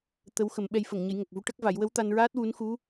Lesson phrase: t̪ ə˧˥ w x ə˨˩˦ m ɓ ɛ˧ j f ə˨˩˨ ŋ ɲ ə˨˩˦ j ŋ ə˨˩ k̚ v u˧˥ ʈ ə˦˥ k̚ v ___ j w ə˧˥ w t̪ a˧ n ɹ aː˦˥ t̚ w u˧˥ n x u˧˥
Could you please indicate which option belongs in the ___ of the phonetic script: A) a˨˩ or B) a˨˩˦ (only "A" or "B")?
B